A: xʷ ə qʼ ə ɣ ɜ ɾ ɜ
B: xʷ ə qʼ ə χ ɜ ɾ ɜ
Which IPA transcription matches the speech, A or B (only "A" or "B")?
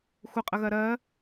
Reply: A